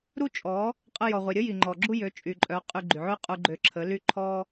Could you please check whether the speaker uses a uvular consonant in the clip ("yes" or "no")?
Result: yes